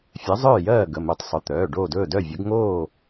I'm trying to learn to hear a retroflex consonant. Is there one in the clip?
yes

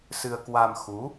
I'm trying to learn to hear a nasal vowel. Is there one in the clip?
no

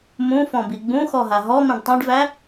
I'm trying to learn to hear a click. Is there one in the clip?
no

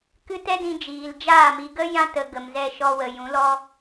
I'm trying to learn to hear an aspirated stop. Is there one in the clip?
no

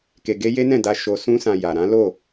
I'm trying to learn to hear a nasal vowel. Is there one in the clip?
yes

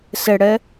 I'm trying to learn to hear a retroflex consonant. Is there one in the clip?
yes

